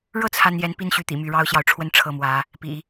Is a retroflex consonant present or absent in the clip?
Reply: present